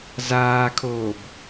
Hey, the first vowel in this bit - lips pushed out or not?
no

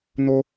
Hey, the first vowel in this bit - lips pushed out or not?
yes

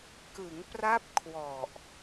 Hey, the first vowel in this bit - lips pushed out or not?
no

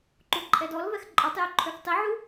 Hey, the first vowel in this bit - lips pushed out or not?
yes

